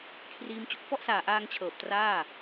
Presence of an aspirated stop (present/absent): present